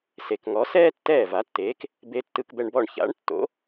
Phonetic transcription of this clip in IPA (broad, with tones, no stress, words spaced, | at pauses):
se˩kŋɔ˩˥sɛː˥ tːɛː˥˩ va˩˥tːeː˩˥k | be˧ tːɯ˧kbɛ˧ɳbɔ˥˩ɳ ça̰˩˥ɳtːo̰˩˥